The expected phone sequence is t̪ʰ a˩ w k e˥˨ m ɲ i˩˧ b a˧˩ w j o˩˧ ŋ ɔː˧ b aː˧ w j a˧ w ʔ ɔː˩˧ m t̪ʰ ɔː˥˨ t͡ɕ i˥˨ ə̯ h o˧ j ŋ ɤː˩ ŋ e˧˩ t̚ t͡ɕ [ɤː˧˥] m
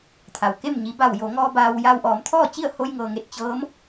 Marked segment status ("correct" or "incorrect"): correct